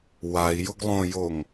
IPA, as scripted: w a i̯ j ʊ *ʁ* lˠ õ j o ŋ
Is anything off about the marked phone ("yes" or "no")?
yes